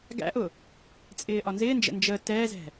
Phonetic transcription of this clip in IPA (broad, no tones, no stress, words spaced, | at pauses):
ɡæ̰ʔʊ | t͡sʼɪːʔɒnzɪːnd͡ʒə̰ nd͡ʒə tɛːzɛ̤